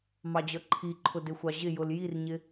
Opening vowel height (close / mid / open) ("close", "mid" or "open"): open